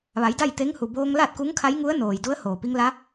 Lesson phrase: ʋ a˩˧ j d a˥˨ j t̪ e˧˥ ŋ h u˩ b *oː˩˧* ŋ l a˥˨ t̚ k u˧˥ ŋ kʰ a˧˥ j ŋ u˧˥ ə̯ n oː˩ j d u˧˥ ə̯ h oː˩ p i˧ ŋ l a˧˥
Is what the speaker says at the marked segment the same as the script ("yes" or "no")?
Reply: no